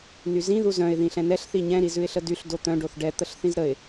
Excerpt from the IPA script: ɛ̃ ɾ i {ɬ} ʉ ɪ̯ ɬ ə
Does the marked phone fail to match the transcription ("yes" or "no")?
yes